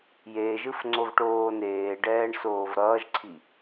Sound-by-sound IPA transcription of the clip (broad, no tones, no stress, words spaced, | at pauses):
jeʒɯf ŋ͡ǀovʈoːneːɖɛːɳ soːvɾʌːʒǀʰi